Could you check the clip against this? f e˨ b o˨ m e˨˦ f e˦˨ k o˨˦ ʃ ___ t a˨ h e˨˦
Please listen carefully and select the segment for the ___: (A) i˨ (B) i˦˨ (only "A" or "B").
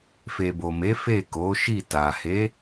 B